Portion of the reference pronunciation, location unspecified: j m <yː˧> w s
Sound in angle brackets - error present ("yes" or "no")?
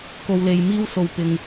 yes